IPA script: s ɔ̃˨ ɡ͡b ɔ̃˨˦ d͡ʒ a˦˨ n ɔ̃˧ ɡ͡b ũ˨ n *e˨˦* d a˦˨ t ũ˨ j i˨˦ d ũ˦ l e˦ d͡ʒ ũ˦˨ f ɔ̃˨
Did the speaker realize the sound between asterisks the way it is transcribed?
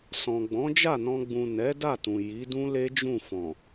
no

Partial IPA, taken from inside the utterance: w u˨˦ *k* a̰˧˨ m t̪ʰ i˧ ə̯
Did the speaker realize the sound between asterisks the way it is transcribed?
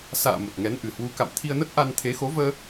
yes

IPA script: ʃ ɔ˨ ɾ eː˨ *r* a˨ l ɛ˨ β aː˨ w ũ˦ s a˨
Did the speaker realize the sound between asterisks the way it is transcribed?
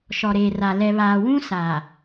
yes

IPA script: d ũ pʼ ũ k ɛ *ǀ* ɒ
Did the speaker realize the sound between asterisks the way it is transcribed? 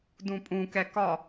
no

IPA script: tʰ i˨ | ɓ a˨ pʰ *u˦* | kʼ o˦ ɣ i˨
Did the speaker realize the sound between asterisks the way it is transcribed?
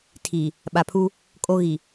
yes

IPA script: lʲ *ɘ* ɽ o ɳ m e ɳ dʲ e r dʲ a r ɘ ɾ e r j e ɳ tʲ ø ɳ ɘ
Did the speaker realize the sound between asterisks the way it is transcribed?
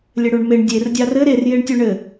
yes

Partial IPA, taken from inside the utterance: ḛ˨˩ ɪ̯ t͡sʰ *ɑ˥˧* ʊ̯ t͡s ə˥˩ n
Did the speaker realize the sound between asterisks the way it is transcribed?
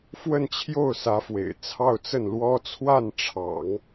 yes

